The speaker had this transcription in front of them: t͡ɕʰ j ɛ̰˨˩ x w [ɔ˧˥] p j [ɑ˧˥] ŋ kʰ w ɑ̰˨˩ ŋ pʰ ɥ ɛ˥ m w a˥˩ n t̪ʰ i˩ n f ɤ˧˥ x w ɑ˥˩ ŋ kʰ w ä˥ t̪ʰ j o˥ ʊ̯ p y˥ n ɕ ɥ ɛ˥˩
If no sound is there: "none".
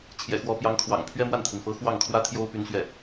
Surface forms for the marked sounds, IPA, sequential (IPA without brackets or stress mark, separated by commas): ɔ˧˥, ɑ˧˥